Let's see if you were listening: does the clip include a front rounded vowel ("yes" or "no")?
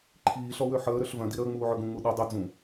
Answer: yes